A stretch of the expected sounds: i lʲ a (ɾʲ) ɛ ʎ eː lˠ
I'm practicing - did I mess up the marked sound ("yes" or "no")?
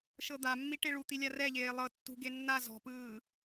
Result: yes